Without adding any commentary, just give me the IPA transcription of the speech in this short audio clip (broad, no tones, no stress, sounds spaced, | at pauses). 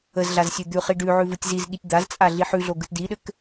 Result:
ə z ɮ a z sʲ ʉ d̪ ʉ χ i ɖ ʉ ʕ ʉ v ɯ tʲ z i z ɠ i tʲ d̪ a z t͡sʼ a ɮ i ħ ʉ ɮ o ɡ ɯ t d i ɗ ɘ k